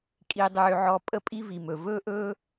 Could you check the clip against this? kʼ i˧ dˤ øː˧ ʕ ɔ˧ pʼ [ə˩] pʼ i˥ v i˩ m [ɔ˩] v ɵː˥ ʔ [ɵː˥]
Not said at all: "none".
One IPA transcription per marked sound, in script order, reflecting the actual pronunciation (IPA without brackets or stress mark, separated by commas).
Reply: ə˥, ɵ˩, ɵː˥